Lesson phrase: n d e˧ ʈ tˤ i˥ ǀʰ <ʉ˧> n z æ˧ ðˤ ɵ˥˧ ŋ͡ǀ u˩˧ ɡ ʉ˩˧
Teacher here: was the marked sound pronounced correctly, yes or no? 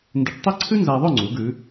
no